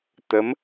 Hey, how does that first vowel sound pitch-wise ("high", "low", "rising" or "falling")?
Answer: rising